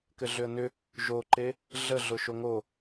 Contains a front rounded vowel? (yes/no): yes